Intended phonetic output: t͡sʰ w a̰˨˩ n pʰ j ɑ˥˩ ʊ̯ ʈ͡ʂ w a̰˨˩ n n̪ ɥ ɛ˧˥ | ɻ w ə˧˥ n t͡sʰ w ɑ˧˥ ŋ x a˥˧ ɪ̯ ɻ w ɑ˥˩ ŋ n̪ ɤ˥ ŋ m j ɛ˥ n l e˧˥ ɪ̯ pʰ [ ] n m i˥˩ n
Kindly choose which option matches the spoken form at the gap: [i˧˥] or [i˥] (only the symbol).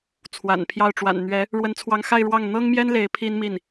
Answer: i˥